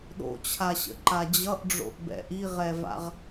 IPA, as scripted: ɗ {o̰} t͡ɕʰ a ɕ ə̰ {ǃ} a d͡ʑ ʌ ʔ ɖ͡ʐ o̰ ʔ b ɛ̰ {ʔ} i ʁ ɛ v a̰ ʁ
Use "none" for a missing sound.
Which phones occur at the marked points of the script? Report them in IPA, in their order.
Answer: o̰, ǃ, ʔ

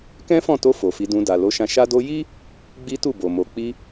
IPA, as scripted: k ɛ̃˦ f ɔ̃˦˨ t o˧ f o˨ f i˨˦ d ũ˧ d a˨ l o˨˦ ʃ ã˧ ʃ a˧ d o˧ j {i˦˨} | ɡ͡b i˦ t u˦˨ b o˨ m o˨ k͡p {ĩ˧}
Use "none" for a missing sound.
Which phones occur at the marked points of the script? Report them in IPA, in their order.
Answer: i˦, i˧

